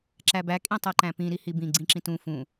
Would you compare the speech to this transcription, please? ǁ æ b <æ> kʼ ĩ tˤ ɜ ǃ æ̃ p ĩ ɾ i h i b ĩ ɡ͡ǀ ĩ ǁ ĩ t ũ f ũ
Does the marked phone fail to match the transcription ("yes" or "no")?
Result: no